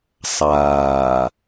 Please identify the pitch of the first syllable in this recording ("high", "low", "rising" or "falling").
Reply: low